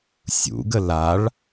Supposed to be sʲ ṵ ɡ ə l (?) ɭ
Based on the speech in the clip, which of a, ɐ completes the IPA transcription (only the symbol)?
a